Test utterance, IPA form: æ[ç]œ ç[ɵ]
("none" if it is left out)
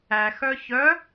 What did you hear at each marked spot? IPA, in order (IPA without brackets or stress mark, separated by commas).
x, œ